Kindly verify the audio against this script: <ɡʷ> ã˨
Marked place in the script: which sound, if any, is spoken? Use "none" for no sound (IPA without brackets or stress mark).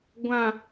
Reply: ɡʷ